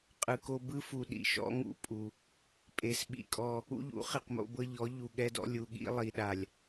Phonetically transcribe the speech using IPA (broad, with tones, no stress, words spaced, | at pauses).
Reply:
qʼɯ˨ko˦ bɯ˦fu˨ ɗḭ˨ʃɔ̰˨˦ŋṵ˨ pʼu˨ | pʼe˨sɓḭ˨kʼɔ˦ | ṵ˦ʎṵ˨˦ χi˨qmo̰˦bɤ˦ ʎɔ˨˦ ʎu˨ɠɛ˦dɔ̰˦ lʲu˨ɠḭ˦ lˠi˨ɗa˨lʲ